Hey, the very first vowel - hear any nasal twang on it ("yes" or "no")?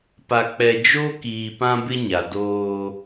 no